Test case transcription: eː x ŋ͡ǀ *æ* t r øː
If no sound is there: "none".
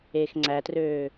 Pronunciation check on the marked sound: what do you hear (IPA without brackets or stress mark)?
æ